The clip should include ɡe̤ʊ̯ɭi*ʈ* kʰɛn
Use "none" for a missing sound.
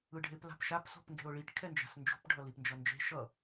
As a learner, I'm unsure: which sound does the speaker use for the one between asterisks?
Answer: ʈ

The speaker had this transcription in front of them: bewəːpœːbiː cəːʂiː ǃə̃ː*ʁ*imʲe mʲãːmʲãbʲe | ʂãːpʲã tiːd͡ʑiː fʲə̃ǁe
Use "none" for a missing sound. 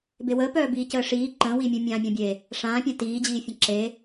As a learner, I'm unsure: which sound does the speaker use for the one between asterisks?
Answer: w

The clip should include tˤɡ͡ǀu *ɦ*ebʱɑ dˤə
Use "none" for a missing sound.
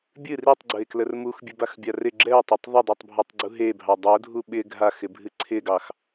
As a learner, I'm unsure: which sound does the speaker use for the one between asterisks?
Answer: ɦ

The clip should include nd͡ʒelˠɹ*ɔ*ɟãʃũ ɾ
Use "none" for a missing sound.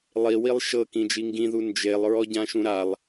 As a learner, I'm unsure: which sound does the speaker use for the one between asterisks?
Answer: ɔ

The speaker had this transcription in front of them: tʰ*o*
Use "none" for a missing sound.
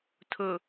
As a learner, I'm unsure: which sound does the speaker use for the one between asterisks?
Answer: ɵ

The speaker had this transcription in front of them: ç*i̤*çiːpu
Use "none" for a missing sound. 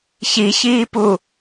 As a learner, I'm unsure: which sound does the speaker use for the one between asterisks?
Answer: i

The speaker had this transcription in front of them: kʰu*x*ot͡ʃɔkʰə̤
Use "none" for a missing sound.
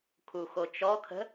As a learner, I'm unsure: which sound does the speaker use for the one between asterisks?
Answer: x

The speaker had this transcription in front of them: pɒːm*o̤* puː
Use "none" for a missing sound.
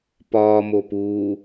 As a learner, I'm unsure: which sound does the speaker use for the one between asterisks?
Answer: o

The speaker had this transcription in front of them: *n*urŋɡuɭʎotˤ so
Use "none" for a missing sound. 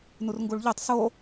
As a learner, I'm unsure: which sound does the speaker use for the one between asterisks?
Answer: n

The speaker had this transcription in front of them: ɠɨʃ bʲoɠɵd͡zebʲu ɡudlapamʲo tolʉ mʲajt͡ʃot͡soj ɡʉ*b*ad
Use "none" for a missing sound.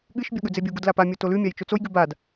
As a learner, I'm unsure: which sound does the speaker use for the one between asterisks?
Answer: b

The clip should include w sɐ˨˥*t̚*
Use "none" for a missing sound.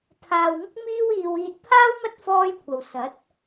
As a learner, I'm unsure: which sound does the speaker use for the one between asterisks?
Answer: t̚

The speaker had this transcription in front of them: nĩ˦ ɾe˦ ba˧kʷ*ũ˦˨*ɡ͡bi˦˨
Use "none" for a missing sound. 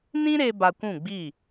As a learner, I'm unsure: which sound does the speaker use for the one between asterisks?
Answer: ũ˦˨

